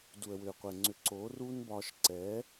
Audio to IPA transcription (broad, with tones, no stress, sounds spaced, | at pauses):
d u˨ ə̯ w ʏː˨ qʷ ɛ˨ ŋ͡ǀ ʏ˨ ǀ oː˨˦ r uː˦ n b ɒː˧ ʃ ǀ ɛː˨˦